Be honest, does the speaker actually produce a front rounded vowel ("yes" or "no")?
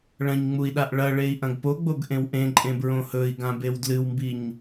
no